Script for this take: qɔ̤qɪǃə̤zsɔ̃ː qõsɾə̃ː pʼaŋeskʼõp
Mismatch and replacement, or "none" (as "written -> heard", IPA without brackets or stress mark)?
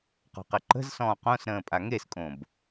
p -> b